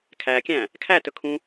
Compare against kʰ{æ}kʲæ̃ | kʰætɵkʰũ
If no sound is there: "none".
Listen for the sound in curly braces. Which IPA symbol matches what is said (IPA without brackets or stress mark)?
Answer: æ